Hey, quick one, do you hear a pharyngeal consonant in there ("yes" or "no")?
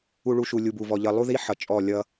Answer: yes